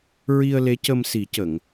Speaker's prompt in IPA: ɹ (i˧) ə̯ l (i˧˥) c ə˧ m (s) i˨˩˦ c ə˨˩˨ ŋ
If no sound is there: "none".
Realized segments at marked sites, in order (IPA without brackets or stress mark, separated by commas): i˧, e˧˥, s